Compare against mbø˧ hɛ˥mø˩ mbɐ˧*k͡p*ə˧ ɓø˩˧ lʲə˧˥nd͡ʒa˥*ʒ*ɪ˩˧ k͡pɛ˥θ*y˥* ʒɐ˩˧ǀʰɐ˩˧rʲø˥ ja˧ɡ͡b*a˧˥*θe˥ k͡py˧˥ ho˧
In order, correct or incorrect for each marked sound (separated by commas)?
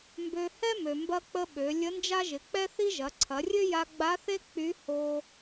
correct, correct, incorrect, correct